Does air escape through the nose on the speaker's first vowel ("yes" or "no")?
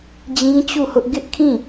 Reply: yes